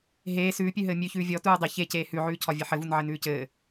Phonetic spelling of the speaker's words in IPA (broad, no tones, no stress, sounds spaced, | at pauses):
ɦ eː s ʉː pʲ ʉ ɦ ɘː mʲ ʉ ç ʉː vʲ ɔ t uː dˤ ɘ ç e c eː h ʉ ʕ ʉː cʰ ɒ vʲ ɘ ħ ɘ v u n ʕ ɘ n ʉː c ɘː